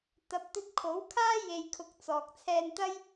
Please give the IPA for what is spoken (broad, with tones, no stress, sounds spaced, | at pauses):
t̪ ɐ˨˥ p̚ t̪ ɵ˧ t̚ kʰ o˨˥ w kʰ aː˥ j e˨ j kʰ ʊ˨˥ k̚ t͡s ɔː˨ k̚ t͡sʰ ɛː˧ n t̪ ɐ˥ j